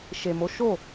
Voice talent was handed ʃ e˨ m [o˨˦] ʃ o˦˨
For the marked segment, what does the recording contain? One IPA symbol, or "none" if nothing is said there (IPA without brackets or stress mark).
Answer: o˨˦